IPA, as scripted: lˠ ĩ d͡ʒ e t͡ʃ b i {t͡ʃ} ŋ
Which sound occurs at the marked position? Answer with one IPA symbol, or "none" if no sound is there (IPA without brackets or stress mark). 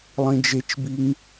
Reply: none